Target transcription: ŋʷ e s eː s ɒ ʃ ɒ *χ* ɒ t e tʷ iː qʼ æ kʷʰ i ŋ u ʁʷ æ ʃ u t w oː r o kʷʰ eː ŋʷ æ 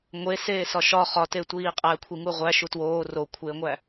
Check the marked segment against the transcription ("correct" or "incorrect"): correct